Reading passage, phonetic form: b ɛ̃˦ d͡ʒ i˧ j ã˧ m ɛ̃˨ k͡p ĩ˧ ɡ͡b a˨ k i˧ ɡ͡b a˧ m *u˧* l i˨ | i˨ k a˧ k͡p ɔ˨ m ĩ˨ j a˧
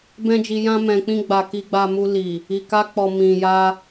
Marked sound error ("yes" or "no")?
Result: no